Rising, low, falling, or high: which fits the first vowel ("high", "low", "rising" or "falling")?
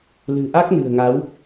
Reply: low